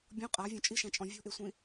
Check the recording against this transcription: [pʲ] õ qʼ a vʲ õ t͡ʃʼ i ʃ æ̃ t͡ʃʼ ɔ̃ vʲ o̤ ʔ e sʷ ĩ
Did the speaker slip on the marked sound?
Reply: yes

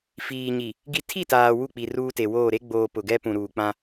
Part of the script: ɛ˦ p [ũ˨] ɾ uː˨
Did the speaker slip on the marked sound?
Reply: no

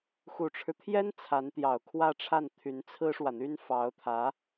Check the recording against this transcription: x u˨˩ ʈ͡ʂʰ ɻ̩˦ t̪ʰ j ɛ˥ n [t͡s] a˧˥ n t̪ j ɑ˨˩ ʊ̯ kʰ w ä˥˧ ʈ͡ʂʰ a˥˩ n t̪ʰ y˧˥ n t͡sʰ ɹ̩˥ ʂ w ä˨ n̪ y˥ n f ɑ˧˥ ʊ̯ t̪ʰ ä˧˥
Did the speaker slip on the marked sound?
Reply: yes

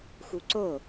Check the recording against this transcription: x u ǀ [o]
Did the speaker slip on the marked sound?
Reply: no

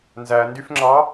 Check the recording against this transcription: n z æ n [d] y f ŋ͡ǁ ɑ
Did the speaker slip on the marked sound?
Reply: no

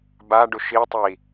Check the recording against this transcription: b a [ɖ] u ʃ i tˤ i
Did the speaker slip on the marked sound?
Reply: no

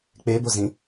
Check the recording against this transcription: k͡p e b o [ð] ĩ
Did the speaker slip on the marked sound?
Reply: yes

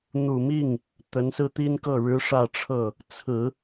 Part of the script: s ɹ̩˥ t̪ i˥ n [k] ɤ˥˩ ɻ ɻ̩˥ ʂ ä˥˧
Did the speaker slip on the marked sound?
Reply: no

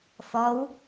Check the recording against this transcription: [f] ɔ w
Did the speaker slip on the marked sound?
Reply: no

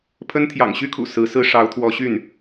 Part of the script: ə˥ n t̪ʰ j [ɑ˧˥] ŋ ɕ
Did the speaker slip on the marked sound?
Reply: yes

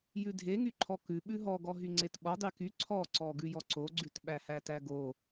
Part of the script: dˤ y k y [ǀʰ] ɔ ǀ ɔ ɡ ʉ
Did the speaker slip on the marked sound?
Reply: no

